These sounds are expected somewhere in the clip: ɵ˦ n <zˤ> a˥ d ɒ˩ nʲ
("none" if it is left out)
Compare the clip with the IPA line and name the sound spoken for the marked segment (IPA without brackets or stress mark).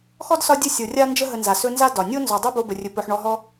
z